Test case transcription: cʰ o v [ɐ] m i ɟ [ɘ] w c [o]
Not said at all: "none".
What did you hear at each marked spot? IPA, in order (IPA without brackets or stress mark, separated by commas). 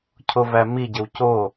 æ, ɘ, o